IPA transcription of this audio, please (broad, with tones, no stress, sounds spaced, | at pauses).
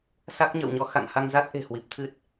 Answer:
s a˦˥ k̚ ɲ ə̰ː˧˨ w ɲ ɔ˨˦ x a̰˧˨ ŋ h a˧ ŋ z a˦˥ t̚ ʔ e̤˨˩ h w i˨˩ p̚ t̪ʰ ɨ˦˥ t̚